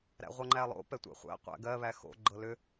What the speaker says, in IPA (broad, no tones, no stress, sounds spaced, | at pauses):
ɾ æ̰ ʁʷ ɤ ŋ͡ǃ æ lˠ o̰ p ɛ tʷ æ̰ χʷ æ̰ qʷ æ̰ ɡ ɜ β æ x o̰ ɡ͡ǃ ɤ l ʏ